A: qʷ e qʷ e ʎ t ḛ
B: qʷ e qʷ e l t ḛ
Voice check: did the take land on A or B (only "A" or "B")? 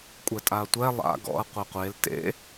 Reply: B